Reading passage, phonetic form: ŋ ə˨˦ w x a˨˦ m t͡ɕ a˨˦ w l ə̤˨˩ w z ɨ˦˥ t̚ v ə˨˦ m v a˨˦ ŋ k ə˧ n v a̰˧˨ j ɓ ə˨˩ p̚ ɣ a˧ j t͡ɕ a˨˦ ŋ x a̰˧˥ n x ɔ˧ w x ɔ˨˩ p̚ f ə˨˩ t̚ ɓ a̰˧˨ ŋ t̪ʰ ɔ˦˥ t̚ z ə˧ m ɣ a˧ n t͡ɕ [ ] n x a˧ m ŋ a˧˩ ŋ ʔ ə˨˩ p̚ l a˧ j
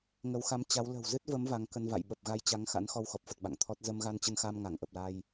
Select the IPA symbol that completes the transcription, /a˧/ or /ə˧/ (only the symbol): ə˧